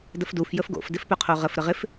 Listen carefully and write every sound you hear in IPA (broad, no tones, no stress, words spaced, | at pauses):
dəfduf jəfɡo̰f dɪfpœqʰoʁəf ɾəʁɪf